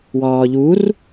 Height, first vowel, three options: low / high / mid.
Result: low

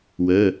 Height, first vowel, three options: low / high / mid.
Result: mid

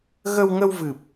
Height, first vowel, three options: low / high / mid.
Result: mid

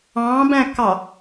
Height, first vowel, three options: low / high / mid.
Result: low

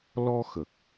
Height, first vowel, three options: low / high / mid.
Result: mid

